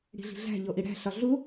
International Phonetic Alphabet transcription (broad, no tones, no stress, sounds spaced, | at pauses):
ɽ i̤ ɮ i̤ ɮ æ̤ ʎ o ʔ i ɽ æ̤ ɬ ɒ ɮ u